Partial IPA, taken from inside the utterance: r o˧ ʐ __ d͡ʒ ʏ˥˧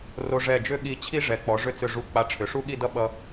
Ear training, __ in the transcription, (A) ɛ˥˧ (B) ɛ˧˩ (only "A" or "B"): B